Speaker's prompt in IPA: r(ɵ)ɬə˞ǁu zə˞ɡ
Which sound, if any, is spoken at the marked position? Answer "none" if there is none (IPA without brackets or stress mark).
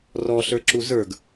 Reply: ɔ